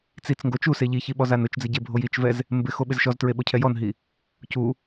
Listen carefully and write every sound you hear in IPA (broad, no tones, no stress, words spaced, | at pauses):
t͡sit͡sŋɡo t͡ʃuse ʎiçiɓɔzan ʊt͡ʃd͡zɪɟebʱoj it͡ʃvɛz | mbɪxoɓɪz ʃɔztɹeɓocʰɛ jɔnɦi | cu